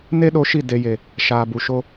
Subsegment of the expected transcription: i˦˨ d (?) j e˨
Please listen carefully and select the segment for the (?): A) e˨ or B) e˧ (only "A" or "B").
A